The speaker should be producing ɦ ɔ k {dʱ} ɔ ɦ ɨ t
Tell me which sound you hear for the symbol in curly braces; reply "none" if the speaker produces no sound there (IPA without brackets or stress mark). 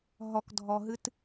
dʱ